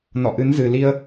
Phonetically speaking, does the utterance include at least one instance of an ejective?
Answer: no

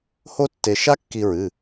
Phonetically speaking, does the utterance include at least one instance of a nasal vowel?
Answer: no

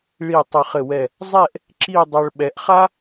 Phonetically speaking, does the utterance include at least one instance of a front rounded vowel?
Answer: no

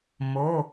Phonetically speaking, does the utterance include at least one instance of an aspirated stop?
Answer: no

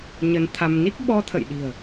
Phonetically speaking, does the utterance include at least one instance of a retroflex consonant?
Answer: no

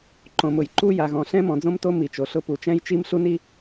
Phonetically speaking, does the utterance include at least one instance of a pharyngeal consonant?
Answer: no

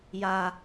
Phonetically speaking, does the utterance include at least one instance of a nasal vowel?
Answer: no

